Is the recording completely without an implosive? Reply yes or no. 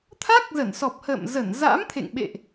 no